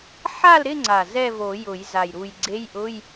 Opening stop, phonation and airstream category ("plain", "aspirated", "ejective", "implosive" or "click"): click